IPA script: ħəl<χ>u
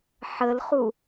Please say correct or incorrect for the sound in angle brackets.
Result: correct